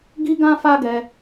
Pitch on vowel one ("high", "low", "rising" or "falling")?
high